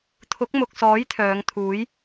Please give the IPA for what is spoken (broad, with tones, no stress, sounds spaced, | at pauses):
t̪ʰ ʊ˨˥ k̚ m ʊ˨ k̚ s ɔː˨˥ j t̪ʰ œː˨˧ ŋ t̪ʰ uː˨˥ j